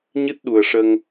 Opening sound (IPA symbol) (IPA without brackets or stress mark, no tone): ɲ